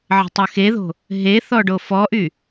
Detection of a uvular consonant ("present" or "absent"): absent